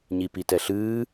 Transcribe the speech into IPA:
ɲ i p i t ɛ ɬ ɨː

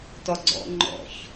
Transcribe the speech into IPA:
t ɔ ɡ͡ǀ ɔ̰ ŋ͡ǃ ɔ̰ ç

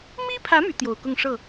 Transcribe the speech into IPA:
m i˥ pʰ ä˧˥ m y˧˥ t̪ j o˨˩ ʊ̯ k ʊ˥˧ ŋ ʂ ɤ˥˩

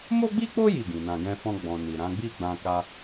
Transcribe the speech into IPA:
m o˦ ɡ͡b i˦ k͡p o˦ j i˦˨ ɡ ĩ˨ n ã˨ ɡ ɛ̃˧ f ɔ̃˧ ɡ͡b ɔ̃˨ n i˨ ɾ ã˨˦ ɡ͡b i˦˨ ɡ͡b ã˧ k a˧

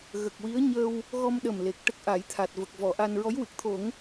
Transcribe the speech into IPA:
ɣ ə˨˩ k̚ w i˧˥ ə̯ ɲ əː˧ w | ɣ ɔ˧ m ɗ ə˨˩ m l e˨˩ k̚ ʈ ə˦˥ k̚ ʔ a˨˩˦ j t̪ʰ a˨˩ t̚ v ə˨˩ k̚ v ɔ˨˩˨ ʔ a˧ n ɹ ɔ˧˥ j w ɨ˨˩ k̚ t̪ʰ o˨˩˦ ŋ

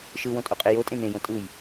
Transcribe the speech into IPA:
ʃ ɯ w õ tʼ o qʼ e j o tʼ ẽ n̪ ẽ j õ tʼ ɯ j

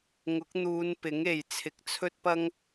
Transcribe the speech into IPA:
ŋ ʊ˨˥ k̚ n̪ uː˨˧ n p ɪ˨˥ ŋ e˨ j t͡sʰ ɪ˨ k̚ t͡sʰ ɵ˥ t̚ p ɐ˥ ŋ

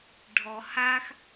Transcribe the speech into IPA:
ɖʱ ɔ h a x

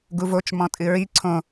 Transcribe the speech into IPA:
ɡ u v o t͡ʃ m ɔ̃ tʼ ɨ ɹ i ǀʰ õ

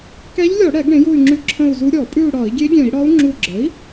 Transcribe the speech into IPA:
k ɛ˧˥ ʎ lʲ ɔ˧˩˧ ɽ ɛ˧˩˧ ɡ ɽ ẽ˩˥ j u˦˨ y̯ ŋ͡ǁ ʉ˧˥ ǁʰ ə̃˦˨ u̯ z u˧˥ ɾʲ ɔ˧˩˧ pʼ ʉ˦˨ u̯ ɽ ɒ˧˩˧ i̯ ɡʲ e˧˥ ɡʲ ɛ̃˧˩˧ i̯ ɽ ɒ˧˥ u̯ ŋ͡ǁ u˦˨ ɡ͡ǁ ə˩˥ i̯

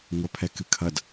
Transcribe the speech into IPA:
ŋʷ ɐ pʰ ɛ k ɨ kʰ ɐ d

